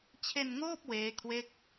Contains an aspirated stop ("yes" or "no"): yes